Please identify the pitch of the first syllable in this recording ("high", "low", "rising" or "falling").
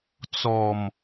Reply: low